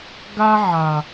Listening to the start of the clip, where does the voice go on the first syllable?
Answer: high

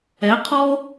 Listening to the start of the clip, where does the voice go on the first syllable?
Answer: rising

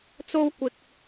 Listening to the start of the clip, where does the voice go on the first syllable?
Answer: high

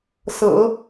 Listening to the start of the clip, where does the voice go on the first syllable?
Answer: low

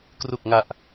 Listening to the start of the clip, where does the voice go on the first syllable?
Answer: low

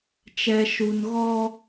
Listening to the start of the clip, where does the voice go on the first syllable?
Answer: low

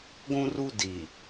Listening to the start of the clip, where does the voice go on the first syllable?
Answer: high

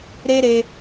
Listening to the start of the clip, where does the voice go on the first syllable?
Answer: high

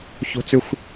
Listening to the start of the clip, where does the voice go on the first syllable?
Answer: high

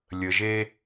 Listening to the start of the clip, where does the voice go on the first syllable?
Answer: low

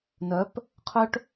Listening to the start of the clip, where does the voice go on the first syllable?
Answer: rising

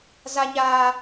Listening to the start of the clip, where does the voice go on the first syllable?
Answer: high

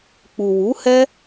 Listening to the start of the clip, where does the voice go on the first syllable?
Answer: low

